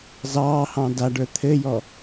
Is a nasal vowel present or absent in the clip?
present